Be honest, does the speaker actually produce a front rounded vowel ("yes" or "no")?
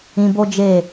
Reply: no